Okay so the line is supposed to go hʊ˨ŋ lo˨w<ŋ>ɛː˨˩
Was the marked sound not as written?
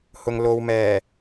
yes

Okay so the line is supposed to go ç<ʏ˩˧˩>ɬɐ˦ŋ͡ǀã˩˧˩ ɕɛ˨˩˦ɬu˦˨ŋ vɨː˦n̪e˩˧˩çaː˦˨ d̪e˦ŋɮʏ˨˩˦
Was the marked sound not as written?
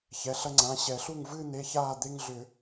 yes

